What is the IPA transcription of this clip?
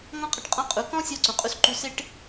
ŋɔ̃˦qʼɪ˧ʈ qʼɔ̃˦qʼu˨˦ kɔ̃˦sʲɔ˧ ǀũ˨qʼu˧sǃu˧ sɪ˦ʈ

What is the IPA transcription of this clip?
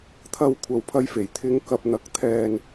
t̪ʰɐ˧wkʷʰɐ˨wpʰɐ˧jfe˨˩j t̪ʰɪ˨˧ŋkɐ˨p̚n̪ɐ˨k̚ t̪ʰɛː˨n

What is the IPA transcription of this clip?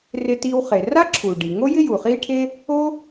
rɪ˧ti˧w χe˩ ra˥ǁʰu˩ɖi˩ ŋo˥jɪ˥ju˩ χiː˥ʈʰe˥ | o˥

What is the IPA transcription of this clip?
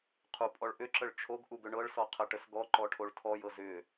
qʰu pʼɔɭʔʏǁəɭ t͡ʃʰoɡʔuɡ ʏɳɤɭsɔ qʰəʈəsɡɔǃɔ ʈʰoɭtʰɔjɤz ʏ

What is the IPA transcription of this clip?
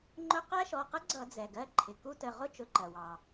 ŋ͡ǃʊ˦˥ qæ˦˥ʃɔ˩˧˩qə˦˥ ɡ͡ǀʌ˧˩˧d͡zɛ˩ɡɜ˩˧˩ ǃʰɪ˩ ku˦˥tə˩˧˩ ʁʊ˦˥t͡ʃʊ˩˧˩ ǃɜ˩wɑ˩

